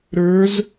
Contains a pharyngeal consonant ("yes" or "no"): no